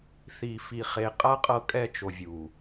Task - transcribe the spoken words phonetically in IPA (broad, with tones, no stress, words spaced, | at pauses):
θi˨fi˨ χe˨qʼa˦ qʼɤ˦kʼɛ˦t͡ʃo˨ vʲu˨